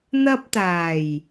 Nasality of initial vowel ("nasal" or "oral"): oral